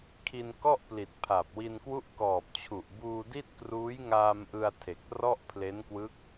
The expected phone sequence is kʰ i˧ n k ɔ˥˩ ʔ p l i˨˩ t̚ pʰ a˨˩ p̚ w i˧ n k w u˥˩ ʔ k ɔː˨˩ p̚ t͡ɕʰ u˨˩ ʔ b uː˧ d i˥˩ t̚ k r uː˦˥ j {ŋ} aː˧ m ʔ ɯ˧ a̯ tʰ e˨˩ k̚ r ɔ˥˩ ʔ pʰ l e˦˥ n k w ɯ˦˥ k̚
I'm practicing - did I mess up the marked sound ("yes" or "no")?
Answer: no